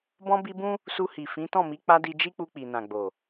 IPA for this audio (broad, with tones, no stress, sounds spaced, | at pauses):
b ɔ̃˧ b i˧ b ũ˦ | s u˧ h i˨ f ĩ˨˦ t ɔ̃˦˨ m i˨˦ k͡p a˧ d i˧ d͡ʒ i˦ k͡p u˧ k͡p i˨ n ã˨ ɡ͡b o˨